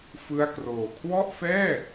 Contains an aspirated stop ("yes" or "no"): yes